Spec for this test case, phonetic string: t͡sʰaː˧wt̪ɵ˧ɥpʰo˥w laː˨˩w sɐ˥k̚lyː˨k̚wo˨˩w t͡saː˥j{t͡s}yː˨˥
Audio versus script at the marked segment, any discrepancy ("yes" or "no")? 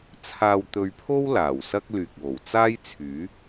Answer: yes